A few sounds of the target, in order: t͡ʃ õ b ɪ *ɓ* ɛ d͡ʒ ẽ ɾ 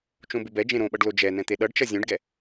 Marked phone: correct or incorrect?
incorrect